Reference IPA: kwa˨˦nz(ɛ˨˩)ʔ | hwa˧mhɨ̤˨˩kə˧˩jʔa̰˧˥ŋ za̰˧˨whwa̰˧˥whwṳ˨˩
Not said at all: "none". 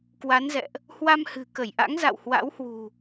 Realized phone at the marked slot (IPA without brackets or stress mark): ɛ̰˧˨